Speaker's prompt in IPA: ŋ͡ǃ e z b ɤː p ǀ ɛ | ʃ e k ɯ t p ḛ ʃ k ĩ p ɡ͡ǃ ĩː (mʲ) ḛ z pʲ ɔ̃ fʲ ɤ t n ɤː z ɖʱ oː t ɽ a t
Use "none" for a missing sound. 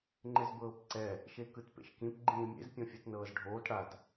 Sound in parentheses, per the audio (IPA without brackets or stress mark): mʲ